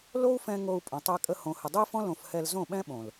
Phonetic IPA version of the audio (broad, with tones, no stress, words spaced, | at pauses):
lo˦u̯fɛ̃˧ ŋo˧u̯ pʼõ˨tˤɛ˧kʼə˧ hõ˨hə˨dˤʊ˦i̯fɔ̃˦ lõ˧fhɛ˧lzõ˦˨ɓɛ̃˦ ɓõ˨l